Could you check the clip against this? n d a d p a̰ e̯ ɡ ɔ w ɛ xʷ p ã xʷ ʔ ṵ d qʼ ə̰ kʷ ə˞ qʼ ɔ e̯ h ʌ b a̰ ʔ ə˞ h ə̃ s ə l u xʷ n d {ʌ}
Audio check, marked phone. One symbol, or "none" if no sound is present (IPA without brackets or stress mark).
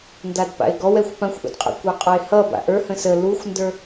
ə˞